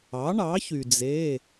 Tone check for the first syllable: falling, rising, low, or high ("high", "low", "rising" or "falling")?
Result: rising